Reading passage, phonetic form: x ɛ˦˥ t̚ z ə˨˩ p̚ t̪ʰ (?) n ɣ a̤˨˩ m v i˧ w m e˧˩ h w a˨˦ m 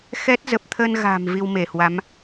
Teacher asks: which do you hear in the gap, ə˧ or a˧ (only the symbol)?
ə˧